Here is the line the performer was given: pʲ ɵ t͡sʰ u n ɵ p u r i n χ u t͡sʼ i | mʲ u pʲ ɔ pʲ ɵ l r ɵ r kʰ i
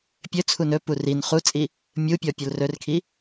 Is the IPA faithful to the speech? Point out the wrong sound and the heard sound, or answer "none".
none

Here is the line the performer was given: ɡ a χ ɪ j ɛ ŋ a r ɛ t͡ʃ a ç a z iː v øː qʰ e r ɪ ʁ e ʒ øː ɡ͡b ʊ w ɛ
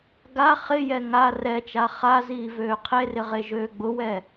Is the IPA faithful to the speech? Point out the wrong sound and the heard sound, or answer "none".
ç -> χ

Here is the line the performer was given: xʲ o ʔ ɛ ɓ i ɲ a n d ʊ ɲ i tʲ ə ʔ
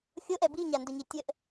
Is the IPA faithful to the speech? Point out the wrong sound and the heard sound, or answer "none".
ɓ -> b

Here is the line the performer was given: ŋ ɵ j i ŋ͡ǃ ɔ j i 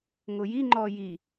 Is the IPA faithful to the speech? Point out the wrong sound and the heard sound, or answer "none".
ɵ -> ʊ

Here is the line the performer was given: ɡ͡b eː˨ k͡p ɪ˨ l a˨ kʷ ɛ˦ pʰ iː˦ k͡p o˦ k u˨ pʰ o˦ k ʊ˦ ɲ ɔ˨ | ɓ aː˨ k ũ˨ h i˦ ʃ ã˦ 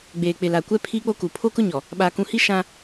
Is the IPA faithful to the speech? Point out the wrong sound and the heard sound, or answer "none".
none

